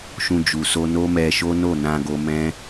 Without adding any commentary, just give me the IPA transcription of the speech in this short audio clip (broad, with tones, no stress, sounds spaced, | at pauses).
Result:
ʃ ũ˧ d͡ʒ u˨ s o˧ n o˦ m ɛ˧ ʃ o˦ n o˦˨ n ã˧ ɡ o˧ m ɛ̃˦